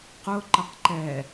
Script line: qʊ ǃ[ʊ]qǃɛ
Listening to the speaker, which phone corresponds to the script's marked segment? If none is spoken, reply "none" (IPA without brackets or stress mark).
ə